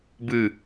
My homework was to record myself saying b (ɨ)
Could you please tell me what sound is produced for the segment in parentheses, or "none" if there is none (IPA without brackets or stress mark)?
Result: ɨ